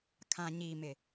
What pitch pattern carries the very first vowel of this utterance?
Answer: low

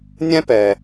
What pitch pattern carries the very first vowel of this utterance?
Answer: high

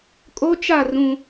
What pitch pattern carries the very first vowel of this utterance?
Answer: high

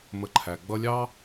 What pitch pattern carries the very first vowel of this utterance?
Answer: low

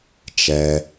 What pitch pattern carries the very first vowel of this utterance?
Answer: low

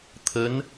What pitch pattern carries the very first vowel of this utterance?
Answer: rising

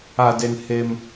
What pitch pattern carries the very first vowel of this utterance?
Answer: low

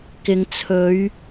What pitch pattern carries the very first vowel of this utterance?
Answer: low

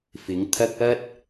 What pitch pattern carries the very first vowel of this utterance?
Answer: rising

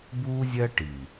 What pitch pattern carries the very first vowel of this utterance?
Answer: high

